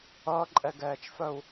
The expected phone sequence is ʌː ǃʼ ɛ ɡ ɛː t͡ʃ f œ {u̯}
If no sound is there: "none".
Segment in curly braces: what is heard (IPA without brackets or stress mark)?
u̯